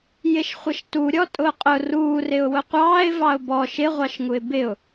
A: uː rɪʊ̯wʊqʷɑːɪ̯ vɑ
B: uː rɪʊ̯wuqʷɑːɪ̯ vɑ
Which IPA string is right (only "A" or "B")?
A